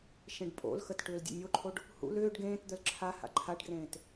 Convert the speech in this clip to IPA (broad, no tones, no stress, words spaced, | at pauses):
ʃẽɖpʼo̰lxət ʈʏːldʲə̰nʲoǃʰoɖ | hṵl ʏːɖ ɡẽːtd̪œl ǁʰa ha̰ǃʰaɖɡrẽːt